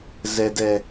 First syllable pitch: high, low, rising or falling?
low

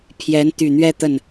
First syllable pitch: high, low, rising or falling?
rising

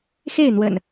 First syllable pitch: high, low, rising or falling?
falling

